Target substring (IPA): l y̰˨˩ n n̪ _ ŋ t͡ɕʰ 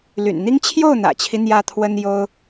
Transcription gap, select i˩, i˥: i˥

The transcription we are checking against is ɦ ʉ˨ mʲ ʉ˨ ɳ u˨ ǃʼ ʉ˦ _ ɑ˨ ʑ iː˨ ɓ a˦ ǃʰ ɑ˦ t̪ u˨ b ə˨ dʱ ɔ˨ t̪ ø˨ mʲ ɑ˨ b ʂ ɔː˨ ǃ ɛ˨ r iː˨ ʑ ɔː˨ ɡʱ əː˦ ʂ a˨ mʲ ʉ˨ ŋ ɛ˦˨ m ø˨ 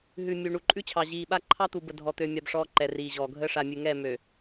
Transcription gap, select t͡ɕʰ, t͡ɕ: t͡ɕʰ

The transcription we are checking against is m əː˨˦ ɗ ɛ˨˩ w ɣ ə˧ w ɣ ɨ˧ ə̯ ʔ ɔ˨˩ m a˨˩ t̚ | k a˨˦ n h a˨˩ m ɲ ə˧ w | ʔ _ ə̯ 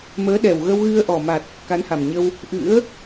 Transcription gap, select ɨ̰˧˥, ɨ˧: ɨ̰˧˥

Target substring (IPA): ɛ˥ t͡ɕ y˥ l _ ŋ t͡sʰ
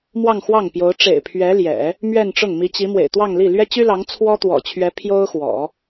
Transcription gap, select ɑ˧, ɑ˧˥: ɑ˧˥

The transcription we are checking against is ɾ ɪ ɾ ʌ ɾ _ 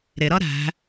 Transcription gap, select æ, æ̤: æ̤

